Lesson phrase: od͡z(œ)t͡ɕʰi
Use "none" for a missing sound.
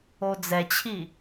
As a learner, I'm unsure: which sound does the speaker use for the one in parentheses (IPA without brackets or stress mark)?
ɛ